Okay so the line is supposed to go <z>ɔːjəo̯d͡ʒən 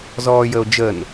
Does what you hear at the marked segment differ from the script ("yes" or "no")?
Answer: no